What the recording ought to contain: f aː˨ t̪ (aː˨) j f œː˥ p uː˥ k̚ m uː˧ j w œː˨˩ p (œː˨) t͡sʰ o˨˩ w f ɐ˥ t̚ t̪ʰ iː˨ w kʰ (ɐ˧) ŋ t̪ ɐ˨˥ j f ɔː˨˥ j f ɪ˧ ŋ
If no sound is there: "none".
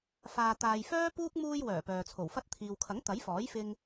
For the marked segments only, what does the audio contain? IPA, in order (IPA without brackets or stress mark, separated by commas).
aː˨, œː˨, ɐ˨˥